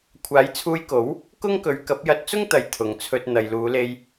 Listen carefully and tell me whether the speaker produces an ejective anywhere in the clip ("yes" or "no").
no